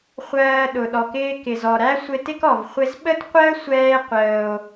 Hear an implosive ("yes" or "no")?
yes